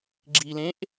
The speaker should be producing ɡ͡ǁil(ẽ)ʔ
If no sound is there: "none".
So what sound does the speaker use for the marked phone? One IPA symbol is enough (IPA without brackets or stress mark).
ẽ